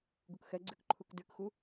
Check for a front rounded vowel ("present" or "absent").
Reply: present